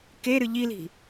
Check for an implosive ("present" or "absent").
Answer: absent